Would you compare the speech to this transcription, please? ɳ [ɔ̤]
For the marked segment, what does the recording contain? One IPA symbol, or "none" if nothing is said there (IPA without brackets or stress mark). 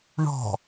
ɔ̤